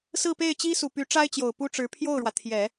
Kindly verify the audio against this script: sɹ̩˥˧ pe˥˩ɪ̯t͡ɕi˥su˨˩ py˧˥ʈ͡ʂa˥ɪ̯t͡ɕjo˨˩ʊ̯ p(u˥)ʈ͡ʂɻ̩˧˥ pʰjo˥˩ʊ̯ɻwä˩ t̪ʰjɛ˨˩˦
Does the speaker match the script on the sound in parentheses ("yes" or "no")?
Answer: yes